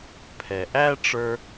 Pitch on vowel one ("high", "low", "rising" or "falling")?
low